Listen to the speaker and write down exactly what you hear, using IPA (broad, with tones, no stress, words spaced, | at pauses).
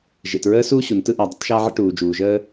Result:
ʒḛ˩tɹəː˥suː˥ ɕu˩ntɯ˥ ʔa˩ dˤə̰˥tˤʃaː˥ʕə̰˥ ʈuː˩d͡ʒuː˩ʒəː˥